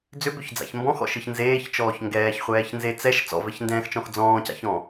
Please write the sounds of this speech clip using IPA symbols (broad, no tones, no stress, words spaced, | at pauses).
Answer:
d͡zʏbʏçd͡za̰ç mbɔ̃xɔ̰ʃɯç nzeːçt͡ʃɔːç ŋɡɛːçχʷɛːçnze t͡sɛʃ t͡sɔ̰vɛçndɛ̃ːxt͡ʃɔ̃x d͡zɔ̃ːca̰çɔ̃